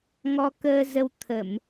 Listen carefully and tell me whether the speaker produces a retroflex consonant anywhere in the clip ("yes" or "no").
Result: no